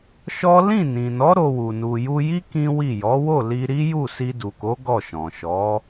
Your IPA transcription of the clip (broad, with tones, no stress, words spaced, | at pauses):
ʃɔ˦ lĩ˦˨nĩ˨nɔ˨˦ ɾo˧wu˨ nu˨ju˧ji˦ kĩ˦wi˦˨ jɔ˨˦wo˦˨li˧ɾi˦ ju˦˨si˧du˨ko˨˦ ɡɔ˦˨ʃɔ̃˨ ʃɔ˨˦